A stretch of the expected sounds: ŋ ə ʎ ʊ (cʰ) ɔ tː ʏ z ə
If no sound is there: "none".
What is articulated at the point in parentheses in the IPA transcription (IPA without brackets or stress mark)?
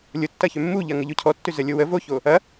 cʰ